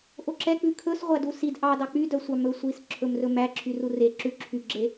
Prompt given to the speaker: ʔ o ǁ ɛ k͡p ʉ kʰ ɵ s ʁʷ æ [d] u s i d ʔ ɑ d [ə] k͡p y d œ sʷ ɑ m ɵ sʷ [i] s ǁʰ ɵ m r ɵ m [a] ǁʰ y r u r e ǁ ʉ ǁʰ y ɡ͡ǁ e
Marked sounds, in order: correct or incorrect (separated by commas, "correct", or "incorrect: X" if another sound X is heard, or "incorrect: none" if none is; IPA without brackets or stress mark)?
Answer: correct, incorrect: ɑ, correct, incorrect: æ